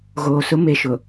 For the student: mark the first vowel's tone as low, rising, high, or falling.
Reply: low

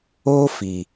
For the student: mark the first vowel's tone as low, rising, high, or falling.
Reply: high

